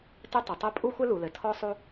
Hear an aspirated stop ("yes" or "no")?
yes